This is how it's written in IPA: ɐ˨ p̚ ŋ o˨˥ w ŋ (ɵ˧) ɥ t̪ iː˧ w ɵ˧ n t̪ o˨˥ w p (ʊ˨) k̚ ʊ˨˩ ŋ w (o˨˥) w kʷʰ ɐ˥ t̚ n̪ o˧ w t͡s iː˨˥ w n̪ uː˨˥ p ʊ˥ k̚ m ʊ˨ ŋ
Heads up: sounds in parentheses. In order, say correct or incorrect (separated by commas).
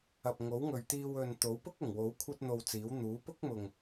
incorrect, incorrect, correct